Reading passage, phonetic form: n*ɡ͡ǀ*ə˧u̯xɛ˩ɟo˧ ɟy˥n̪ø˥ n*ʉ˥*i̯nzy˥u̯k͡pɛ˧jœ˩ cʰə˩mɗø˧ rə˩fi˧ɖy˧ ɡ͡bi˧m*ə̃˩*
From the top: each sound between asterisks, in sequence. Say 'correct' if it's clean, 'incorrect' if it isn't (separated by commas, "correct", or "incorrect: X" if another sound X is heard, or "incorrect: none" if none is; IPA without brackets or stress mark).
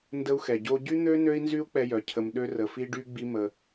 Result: incorrect: d, incorrect: ø˥, incorrect: ə˩